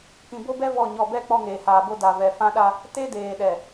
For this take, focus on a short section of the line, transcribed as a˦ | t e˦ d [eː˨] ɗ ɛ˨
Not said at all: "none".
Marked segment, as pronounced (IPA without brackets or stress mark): eː˨